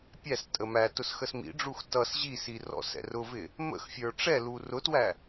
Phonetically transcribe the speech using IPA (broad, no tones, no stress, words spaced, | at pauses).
pʲæstʼə mæ tʊsxəsmḭɖ͡ʐux tʌs ʑisi rɔ̰sɛ̰rʊvɪ | mə̰xfʲə˞ ʈ͡ʂɛlu rʊtwæ